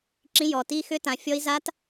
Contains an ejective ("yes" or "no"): no